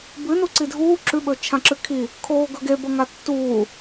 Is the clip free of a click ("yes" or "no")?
no